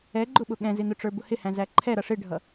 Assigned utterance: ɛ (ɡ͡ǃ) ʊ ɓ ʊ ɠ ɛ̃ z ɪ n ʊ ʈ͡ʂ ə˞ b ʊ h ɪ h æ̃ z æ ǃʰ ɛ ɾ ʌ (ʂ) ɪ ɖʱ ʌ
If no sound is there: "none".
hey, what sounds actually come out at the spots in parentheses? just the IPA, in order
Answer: ɡ͡ǃ, ʂ

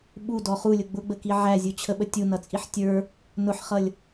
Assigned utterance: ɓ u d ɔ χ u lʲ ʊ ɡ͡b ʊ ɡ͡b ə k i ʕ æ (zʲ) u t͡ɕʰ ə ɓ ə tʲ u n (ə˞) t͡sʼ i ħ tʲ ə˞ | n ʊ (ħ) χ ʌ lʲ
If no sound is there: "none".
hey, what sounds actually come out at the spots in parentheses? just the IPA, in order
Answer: zʲ, ʌ, ħ

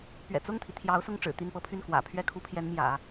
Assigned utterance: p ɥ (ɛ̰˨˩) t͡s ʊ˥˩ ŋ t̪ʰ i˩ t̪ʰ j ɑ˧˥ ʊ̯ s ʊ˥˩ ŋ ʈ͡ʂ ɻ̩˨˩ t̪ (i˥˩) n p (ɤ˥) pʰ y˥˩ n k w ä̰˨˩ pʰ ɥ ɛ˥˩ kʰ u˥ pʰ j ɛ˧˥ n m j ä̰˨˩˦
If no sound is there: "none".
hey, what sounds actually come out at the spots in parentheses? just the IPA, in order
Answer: ɛ̰˨˩, i˥˩, ɤ˥

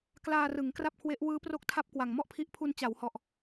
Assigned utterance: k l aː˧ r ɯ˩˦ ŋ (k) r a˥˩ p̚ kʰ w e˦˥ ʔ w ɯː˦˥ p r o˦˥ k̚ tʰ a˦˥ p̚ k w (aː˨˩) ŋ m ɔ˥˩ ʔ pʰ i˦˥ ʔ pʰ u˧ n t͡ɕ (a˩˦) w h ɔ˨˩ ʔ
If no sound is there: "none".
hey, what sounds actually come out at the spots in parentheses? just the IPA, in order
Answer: k, a˨˩, a˩˦

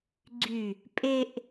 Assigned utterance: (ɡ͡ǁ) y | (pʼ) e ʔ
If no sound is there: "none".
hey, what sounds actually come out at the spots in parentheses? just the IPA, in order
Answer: ɡ͡ǀ, pʼ

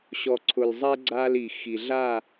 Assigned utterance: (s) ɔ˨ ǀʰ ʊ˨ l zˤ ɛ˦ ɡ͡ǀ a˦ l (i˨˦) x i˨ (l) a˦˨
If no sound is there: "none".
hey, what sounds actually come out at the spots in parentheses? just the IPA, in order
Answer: ɕ, i˨, ɮ

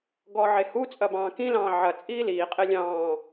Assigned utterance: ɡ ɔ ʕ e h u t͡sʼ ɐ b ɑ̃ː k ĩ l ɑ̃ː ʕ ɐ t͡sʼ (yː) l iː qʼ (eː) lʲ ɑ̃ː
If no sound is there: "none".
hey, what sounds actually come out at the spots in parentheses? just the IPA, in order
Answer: iː, e

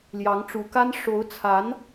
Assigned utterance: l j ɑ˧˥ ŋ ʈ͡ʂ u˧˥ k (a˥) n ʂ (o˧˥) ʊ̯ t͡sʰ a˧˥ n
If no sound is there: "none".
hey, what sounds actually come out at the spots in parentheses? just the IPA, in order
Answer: a˥, o˧˥

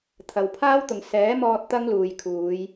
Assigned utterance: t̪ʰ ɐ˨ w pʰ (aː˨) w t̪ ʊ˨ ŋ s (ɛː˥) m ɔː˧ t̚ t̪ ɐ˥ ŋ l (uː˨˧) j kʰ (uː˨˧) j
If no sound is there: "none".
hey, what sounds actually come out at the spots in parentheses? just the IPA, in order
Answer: aː˥, ɛː˨˥, uː˨, uː˨˧

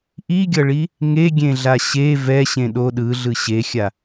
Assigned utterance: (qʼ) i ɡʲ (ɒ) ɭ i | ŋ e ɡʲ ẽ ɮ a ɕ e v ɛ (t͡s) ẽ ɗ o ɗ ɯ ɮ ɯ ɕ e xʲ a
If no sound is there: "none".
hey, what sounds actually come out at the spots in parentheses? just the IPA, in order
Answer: ʔ, ʌ, ɕ

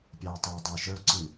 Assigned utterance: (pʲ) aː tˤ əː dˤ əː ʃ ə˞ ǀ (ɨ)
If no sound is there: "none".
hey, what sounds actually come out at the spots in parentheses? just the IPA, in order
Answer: pʲ, ɨ

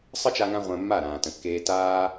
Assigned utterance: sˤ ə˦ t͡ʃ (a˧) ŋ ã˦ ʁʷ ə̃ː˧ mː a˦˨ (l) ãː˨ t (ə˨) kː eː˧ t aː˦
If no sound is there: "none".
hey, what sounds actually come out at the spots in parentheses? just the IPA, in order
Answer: a˦, ɾ, ə̃˨

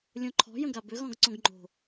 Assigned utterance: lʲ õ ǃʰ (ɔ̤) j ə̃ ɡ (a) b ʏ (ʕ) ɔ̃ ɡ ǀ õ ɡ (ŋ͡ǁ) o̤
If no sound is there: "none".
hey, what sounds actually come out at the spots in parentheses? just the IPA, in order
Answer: ɔ̤, a, ɣ, ŋ͡ǃ

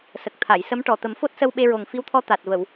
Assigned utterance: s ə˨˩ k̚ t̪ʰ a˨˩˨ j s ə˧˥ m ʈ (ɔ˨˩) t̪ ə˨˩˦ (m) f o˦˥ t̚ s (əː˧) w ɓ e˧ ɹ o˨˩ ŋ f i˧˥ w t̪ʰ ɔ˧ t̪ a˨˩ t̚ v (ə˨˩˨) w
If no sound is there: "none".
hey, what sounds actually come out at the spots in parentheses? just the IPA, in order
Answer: ɔ˨˩, m, ə˧, ə˨˩˨

